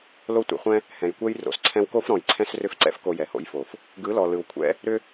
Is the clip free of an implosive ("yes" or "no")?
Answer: yes